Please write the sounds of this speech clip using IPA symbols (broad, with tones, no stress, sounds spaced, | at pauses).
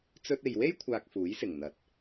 t͡s ɵ˧ t̚ e˨ j w e˥ j kʷʰ aː˨ k̚ f uː˨˥ j s ɪ˨˩ ŋ n̪ ɐ˨˥ t̚